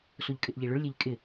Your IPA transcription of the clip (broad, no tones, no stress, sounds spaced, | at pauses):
s o ʎ kʼ ɪ ʔ ʎ e ɭ ʊ ɭ lʲ e ʎ kʼ ɪ